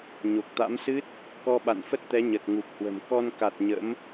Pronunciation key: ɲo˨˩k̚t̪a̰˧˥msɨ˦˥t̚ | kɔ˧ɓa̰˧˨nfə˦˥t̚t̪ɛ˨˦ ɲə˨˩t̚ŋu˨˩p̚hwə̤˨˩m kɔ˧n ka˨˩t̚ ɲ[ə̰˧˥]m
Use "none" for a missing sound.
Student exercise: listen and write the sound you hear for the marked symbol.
ə̰˧˥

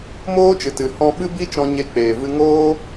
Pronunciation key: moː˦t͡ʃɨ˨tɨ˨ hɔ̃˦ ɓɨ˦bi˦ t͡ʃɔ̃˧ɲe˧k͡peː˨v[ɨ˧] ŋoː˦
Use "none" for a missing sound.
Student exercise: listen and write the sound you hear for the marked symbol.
ɨ˧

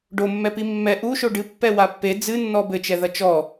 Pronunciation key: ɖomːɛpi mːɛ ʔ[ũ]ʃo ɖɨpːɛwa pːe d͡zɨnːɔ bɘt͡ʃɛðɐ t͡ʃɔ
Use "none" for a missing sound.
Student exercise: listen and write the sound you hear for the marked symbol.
u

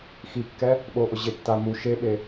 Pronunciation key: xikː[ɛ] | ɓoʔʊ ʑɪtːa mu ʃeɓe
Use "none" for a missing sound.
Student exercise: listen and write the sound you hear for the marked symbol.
ɛ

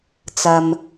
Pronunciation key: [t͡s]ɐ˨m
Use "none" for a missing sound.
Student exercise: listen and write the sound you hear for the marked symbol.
t͡s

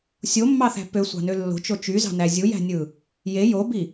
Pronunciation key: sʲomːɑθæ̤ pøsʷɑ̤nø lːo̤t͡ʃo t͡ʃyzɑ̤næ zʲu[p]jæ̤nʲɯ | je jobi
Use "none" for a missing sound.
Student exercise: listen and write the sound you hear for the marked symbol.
none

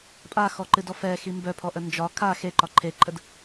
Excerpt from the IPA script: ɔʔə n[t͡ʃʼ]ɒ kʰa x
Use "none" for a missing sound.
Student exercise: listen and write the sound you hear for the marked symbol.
d͡ʒ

